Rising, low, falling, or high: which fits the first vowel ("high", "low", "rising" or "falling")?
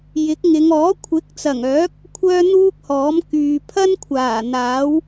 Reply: rising